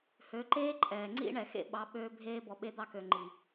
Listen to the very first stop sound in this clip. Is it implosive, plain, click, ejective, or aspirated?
click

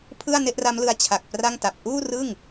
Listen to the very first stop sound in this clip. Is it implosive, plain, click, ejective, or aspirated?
aspirated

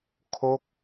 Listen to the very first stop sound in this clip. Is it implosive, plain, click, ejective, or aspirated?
aspirated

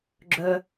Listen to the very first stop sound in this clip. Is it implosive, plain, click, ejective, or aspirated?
click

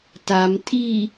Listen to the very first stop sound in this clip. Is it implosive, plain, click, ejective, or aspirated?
plain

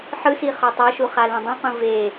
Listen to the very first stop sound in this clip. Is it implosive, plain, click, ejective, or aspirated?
plain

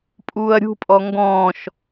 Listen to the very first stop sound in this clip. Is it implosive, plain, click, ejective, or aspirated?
ejective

